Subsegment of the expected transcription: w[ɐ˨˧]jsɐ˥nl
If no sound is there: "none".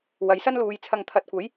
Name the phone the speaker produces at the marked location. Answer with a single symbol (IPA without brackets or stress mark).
ɐ˨˥